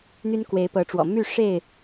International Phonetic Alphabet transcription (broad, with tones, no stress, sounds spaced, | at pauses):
n̪ y˦ n k w e˨˦ ɪ̯ p ɤ˨˦ ʈ͡ʂ w ɔ̰˨˩ m y˥˨ ʂ e˥˨ ɪ̯